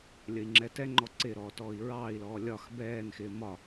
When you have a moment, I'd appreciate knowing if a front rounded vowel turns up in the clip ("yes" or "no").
no